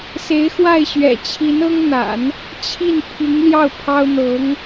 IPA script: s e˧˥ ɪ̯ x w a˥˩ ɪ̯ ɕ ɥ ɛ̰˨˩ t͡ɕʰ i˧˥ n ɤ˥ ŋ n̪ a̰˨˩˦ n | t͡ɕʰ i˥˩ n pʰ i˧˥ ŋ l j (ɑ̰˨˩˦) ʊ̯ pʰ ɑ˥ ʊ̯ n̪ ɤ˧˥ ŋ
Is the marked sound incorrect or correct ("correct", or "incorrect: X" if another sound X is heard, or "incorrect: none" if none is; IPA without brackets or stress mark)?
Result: incorrect: ɑ˥˩